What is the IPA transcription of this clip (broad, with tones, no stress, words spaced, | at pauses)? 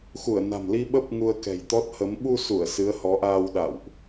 xu˧˩ə̯na̤˨˩mli˧ ɓə˦˥p̚ ŋu˧ə̯kɛ̤˨˩jt̪ɔ˦˥t̚hə˨˦m ɓu˧su˧˩ə̯ sɨ˨˦ə̯hɔ˨˦ʔaː˧w ɗa̰˧˨wʔ